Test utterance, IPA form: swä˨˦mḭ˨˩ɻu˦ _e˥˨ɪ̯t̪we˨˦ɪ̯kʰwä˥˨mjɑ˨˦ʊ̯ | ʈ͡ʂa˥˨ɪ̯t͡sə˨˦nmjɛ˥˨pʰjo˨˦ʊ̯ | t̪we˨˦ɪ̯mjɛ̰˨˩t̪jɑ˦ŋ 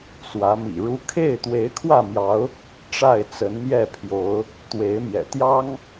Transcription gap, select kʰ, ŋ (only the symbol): kʰ